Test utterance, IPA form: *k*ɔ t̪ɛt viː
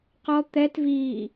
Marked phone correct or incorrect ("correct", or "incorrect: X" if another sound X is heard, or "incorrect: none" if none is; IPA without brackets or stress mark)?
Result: incorrect: q